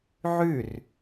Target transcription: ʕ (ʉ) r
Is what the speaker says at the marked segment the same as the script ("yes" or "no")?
yes